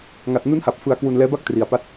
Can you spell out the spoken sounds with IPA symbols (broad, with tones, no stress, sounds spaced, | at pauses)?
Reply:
ŋ a˨˩ t̚ n u˦˥ n h a˨˩ p̚ f ɯ˧ a̯ k w u˧ n l ɛː˦˥ b a˥˩ k̚ t r i˧ a̯ p a˥˩ t̚